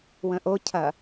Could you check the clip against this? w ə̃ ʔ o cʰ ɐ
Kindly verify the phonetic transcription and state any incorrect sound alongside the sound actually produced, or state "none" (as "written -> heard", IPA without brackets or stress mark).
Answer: none